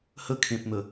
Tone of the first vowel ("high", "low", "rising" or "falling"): falling